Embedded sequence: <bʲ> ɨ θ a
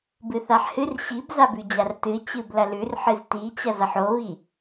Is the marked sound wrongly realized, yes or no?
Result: yes